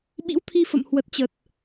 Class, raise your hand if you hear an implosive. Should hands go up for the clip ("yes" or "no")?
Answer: yes